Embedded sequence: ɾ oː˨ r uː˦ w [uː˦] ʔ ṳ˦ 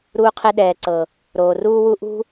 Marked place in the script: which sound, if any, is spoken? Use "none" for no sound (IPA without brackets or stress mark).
u˦